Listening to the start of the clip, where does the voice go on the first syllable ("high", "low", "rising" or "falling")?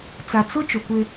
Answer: low